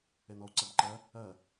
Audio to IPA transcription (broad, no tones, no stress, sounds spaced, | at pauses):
e n ɔ u̯ ǀ ɜ b ǃ ɜ | ɜ